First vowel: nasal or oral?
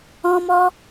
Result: nasal